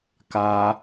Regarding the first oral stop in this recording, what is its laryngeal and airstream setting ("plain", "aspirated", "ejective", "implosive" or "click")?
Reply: plain